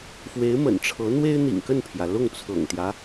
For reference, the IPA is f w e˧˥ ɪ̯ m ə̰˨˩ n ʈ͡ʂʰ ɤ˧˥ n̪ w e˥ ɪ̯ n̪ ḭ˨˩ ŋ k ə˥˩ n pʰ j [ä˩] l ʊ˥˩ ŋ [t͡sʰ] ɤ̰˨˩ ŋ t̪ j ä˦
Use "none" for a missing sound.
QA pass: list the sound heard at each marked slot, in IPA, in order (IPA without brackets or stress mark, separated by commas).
ä˩, t͡sʰ